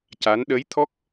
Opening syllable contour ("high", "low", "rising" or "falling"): rising